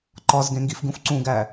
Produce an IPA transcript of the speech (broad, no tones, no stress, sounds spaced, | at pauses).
ǃ ɒ z ɡ ẽ ŋ ɡ i f ɡ ũ f ǀ ũ ɡ æ